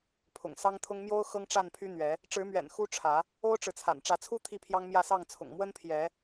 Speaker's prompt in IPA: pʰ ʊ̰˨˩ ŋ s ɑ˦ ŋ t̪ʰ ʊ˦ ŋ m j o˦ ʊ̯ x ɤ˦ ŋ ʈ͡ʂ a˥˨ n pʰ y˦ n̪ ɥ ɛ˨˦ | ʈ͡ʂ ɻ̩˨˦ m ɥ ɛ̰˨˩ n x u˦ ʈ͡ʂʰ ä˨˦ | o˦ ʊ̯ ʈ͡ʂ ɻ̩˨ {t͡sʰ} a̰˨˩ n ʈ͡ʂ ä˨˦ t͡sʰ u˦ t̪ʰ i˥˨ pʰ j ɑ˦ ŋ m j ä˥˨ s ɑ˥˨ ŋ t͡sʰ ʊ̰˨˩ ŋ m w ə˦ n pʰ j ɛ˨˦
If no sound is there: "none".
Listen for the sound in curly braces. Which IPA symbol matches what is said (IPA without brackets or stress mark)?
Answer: t͡sʰ